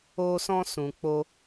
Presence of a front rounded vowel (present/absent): absent